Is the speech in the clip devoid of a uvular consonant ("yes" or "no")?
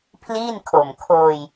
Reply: yes